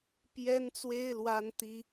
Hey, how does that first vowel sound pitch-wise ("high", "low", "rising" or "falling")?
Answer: high